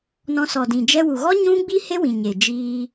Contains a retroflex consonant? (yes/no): no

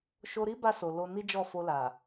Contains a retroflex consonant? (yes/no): no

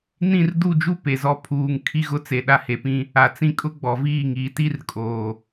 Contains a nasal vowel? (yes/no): yes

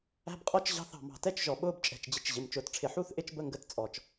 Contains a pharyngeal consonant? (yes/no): yes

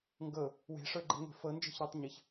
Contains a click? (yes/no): yes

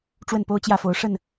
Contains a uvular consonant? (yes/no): no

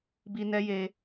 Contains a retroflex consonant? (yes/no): no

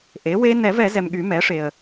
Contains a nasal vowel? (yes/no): no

